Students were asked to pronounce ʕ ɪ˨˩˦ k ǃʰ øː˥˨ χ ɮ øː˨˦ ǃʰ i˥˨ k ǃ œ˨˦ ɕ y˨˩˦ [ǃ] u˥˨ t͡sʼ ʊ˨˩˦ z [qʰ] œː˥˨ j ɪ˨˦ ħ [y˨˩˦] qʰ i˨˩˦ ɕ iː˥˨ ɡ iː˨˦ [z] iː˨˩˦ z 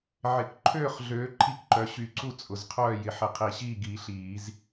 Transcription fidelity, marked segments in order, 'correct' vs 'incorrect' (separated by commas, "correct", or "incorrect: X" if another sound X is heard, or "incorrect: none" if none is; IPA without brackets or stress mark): incorrect: ǀ, correct, incorrect: ɪ˨˩˦, incorrect: ɬ